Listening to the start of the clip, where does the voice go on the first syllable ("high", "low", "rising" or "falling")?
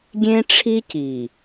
high